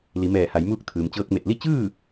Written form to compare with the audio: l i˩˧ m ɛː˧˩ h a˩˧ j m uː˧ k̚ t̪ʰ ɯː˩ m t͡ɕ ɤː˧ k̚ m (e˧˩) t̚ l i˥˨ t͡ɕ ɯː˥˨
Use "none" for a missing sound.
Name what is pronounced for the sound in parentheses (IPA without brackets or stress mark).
e˧˩